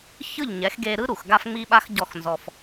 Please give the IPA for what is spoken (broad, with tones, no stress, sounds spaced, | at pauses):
ç ɯ˦˨ ʎ ɲ ɛ˨˦ x ɡ e˧ ɾ ɯ˦ ɾ u˨ x ɡ a˦ f ŋ͡m i˦ ɓ a˦ x ɟ ɔ˦˨ x n z ɔ˧ f